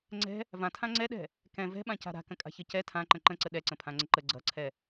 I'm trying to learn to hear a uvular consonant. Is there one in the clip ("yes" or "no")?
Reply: no